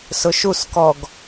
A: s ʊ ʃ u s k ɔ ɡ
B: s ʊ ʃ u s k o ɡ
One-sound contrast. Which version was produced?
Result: A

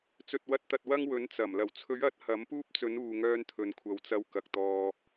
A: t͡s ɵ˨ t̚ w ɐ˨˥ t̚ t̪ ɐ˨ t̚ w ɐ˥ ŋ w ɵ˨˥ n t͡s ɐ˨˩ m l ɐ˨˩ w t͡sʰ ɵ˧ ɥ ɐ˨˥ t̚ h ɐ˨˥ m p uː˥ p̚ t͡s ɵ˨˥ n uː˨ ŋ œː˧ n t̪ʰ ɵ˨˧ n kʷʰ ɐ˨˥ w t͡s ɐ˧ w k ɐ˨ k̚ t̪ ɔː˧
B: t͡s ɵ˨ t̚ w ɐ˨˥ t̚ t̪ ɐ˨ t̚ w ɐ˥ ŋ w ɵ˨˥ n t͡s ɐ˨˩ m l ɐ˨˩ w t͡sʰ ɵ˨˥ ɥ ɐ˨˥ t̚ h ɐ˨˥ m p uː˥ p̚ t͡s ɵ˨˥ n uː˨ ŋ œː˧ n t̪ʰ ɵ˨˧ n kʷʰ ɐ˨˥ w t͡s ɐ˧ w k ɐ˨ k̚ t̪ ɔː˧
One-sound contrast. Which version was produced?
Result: B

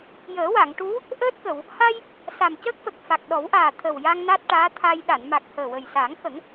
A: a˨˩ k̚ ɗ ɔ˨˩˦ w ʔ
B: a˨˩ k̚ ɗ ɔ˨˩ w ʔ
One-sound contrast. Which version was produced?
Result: A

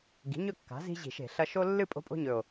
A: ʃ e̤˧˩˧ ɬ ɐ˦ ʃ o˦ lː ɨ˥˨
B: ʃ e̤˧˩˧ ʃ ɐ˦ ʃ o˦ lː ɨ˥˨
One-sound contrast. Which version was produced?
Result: A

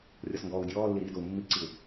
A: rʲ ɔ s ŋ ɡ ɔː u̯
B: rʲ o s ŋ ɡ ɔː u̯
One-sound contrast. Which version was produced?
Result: A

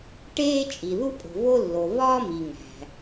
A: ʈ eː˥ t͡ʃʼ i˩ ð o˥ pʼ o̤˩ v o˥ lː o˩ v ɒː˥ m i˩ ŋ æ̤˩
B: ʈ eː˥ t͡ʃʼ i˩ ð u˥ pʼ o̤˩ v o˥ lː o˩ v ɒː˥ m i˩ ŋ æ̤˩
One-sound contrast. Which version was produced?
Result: B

